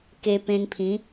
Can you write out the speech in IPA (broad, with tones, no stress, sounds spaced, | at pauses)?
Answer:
k e˧ p ẽ˧ n pʰ ĩ˨˦